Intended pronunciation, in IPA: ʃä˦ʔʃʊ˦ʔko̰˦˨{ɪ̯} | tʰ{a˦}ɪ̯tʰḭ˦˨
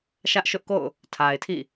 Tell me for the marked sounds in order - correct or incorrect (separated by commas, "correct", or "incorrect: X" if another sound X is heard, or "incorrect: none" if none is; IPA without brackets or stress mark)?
incorrect: ʊ̯, incorrect: a˨